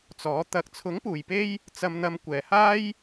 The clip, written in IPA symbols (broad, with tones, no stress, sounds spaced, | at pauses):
t͡s ɔː˨˥ t̪ ɐ˨˥ k̚ t͡sʰ ʊ˨˥ ŋ p uː˨˩ j p e˧ j | t͡s ɐ˨ m n̪ ɐ˨ m kʷ ɛː˨˩ h aː˥ j